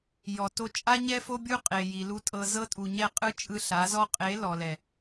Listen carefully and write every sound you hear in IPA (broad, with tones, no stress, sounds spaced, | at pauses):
j ɔ˨ t o˧ t͡ʃʼ a˦ ɲ ɛ˦ f o˦ bʲ u˦ qʼ e˨ j i˨ l u˧ tʼ ɤ˧ z ɤ˦ tʼ u˨ ɲ ɛ˦˨ qʼ ɯ˦ t͡ʃʼ ɯ˧ ɬ a˨˦ z ɔ˧ qʼ e˨˦ l ɔ˨ l ɛ˨